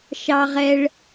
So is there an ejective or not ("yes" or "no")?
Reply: no